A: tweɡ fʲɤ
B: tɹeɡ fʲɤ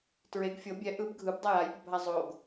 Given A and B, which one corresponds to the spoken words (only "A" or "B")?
B